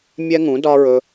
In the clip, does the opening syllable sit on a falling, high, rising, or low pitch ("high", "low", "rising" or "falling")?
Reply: high